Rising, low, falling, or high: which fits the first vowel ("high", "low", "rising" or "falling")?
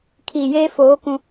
low